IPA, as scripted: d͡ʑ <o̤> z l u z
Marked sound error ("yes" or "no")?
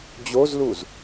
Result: yes